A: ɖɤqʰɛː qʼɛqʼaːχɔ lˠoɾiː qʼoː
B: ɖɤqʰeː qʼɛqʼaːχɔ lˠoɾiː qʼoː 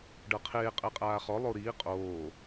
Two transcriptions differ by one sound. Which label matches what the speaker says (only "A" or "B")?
B